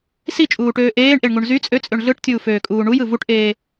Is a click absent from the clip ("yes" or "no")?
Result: yes